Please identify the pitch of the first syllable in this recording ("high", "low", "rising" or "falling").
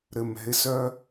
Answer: low